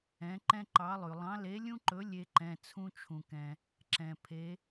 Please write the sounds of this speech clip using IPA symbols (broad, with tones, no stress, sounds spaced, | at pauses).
ɛ̃˨˦ ǃ ɛ̃˦ ǃ ɑ˨˦ lˠ ʉ˩ lˠ ɑ̃˨˦ l e˨˦ lʲ ũ˦ ǃ ɵ˨˦ lʲ e˦ ǃ ɛ̃˩˧˩ t͡sʰ ũ˦ t͡ʃʰ ũ˩ k ɛ̃˩ | ǁ ɛ̃˩ pʰ e˨˦